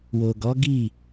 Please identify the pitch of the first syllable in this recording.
low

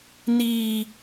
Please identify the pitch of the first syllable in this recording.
high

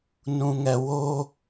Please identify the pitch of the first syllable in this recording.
low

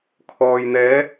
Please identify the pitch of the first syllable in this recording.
low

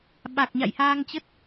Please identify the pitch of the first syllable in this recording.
low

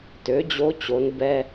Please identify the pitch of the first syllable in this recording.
rising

